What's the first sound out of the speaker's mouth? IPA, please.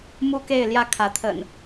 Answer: m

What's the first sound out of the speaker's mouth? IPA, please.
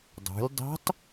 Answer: dˤ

